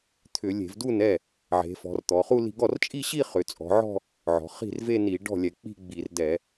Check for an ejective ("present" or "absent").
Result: present